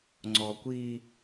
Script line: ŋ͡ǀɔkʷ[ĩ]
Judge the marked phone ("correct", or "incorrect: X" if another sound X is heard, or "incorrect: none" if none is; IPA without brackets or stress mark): incorrect: i